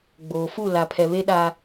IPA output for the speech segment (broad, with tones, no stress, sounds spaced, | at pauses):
ɡ͡b oː˨ f u˦˨ l a˨ pʰ ɛ˨ β e˦ ɗ a˦